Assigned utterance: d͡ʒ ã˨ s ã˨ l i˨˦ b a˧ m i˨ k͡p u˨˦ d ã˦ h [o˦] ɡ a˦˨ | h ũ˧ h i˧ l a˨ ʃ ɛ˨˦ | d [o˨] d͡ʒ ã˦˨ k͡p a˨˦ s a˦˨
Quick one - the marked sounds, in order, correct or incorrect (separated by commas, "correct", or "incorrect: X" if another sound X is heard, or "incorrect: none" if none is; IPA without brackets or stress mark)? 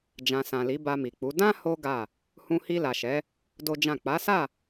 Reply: correct, incorrect: o˦